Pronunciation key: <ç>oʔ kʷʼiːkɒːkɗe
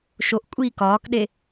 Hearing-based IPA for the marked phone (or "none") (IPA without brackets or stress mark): ʃ